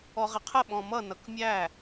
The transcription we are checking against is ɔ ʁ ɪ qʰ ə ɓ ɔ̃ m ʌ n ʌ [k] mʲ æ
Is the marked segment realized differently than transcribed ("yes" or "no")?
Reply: no